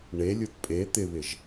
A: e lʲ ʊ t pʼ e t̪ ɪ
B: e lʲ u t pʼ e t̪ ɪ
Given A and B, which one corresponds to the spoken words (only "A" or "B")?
B